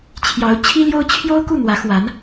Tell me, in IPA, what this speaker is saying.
t͡ɕʰ j ɑ˧˥ ʊ̯ t͡ɕʰ i˥ l j o˥ ʊ̯ t͡ɕʰ j o˥ ʊ̯ k u˥˩ n̪ w ä˧˥ x w a˧˥ n

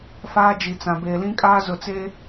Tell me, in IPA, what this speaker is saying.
f aː˦ d͡ʒ i˨ t͡s ã˨ b eː˨ l ĩ˦ kʼ aː˦ z ʊ˨ t͡s e˦

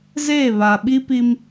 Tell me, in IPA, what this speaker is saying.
z eː˦˨ β a˨ ɓ i˦ p i˦ m

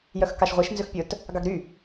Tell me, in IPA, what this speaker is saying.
j œ x k ɑ ʃ ʁʷ e ʃ n z ø x pʲ ɵ t | ɡ ɑ ɡ ɾ y

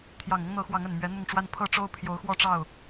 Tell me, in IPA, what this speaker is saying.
t̪ʰ j ɑ˨˩ ŋ ʊ˦ ŋ n̪ ɤ˨˦ x w ɑ˨˦ ŋ ə˨˩ n m ɥ ɛ˨˦ n̪ ʊ˥˨ ŋ ʈ͡ʂ w a˦ n pʰ ɤ˥˨ ʈ͡ʂ o˦ ʊ̯ pʰ j o˨˦ ʊ̯ x w ɔ˥˨ ʈ͡ʂ ɑ˥˨ ʊ̯

